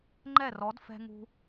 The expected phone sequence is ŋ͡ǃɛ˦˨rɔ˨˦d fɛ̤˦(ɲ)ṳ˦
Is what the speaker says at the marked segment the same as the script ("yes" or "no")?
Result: no